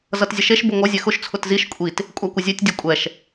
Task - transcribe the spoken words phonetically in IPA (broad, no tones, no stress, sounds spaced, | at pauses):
z ʌ t zʲ ə ʃ e ʃ b ʊ ŋʷ ʌ zʲ ɛ x ʊ ʃ t͡sʰ ʊ t z i ʃ kʷʼ i t | kʷʼ æ kʷ ə zʲ e tʲ dʲ ʊ kʷʼ ɛ ʃ